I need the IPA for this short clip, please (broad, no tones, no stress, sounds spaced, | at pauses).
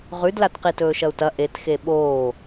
ʁ ʉ d l a t q i t ɵː ʃ ɐ u̯ t ɐ ʔ e t x e ɓ oː